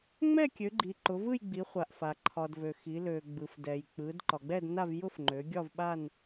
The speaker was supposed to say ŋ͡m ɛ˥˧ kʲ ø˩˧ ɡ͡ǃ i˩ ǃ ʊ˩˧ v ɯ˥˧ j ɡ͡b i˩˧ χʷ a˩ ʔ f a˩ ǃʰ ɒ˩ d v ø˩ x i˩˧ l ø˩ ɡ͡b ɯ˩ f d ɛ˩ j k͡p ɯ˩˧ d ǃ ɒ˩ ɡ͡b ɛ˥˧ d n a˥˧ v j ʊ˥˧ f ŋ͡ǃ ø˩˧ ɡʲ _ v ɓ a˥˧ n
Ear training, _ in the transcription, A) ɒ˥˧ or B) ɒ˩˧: A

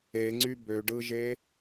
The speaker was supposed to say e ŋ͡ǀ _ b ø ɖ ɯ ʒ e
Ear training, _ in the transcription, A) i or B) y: B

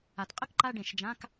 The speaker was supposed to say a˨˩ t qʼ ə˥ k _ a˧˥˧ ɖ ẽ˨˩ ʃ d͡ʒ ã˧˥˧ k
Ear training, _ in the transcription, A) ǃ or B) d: A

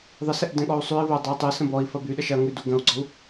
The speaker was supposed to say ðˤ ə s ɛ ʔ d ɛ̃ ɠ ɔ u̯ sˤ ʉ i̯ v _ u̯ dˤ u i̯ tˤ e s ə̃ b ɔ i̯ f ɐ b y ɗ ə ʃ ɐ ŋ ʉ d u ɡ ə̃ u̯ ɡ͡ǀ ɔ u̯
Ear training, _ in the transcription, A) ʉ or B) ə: B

